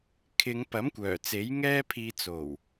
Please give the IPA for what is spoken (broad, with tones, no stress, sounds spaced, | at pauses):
kʰ ɪ˨˧ ŋ p ɐ˨˥ m kʷ œː˨˩ t͡s e˨˥ j ŋ ɛː˥ pʰ iː˧ t͡s o˨˩ w